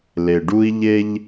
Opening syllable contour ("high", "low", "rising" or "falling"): low